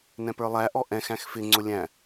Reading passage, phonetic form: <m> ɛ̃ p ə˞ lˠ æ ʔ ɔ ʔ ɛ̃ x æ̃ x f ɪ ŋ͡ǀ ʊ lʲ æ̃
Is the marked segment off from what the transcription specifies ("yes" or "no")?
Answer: yes